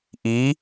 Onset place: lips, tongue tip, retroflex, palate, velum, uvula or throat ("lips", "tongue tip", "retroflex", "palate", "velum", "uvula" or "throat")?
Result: throat